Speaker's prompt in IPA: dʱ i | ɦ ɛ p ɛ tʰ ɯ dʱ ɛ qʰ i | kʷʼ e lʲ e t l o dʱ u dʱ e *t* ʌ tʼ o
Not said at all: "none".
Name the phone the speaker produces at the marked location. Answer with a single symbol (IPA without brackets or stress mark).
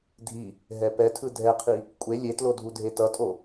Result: t